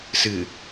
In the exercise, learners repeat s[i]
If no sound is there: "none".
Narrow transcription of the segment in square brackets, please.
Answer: ɨ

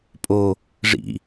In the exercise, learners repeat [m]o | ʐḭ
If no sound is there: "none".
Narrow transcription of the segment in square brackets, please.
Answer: pʼ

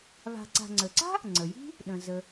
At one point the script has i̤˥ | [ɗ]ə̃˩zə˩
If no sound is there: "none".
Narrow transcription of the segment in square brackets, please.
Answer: ɗ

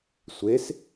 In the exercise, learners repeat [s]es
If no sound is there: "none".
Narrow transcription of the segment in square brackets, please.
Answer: sʷ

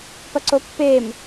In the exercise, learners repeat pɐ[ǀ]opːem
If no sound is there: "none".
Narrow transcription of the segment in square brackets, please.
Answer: ǀ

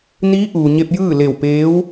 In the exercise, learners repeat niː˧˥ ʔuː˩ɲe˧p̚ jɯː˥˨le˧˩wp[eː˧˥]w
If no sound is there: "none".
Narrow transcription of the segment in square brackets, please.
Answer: eː˧˥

